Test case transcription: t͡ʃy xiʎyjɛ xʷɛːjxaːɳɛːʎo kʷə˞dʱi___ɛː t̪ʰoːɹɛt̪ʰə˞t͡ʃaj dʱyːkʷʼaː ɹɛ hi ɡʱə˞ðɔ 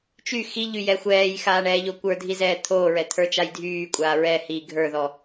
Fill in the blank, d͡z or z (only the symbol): z